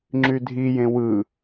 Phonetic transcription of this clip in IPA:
ŋ͡ǁydʱijẽ wɯ

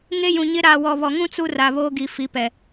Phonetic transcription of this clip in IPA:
ŋe˦jũ˨ɲɪ˦ ɾaː˨wɔ˨βɔ˨ŋũ˦ t͡su˦ ra˨βoː˦ɡi˨ fi˨˦pɛ˨

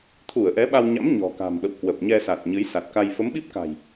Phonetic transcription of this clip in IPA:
t̪ʰu˧˩ə̯ʔɛ˨˦ɓa˧wɲa̰˧˥m ɲɔ̤˨˩ka̤˨˩mɓə̰˧˨w kwə˨˩p̚ɲɛ˧sa˨˩t̚ ɲɨ˨˦jsa˨˩t̚ka˧j fə˨˦mɓi˦˥p̚ka̤˨˩j

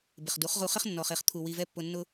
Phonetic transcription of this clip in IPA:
bɪ˨χdu˨˦χʁu˧χɪ˦χ nːɔ˨χe˨χt̪ʰu˨ wi˨vɛ˧pːʊ˨ nːʊ˧

